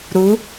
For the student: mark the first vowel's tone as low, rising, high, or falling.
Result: rising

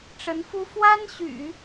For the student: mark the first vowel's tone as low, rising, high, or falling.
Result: rising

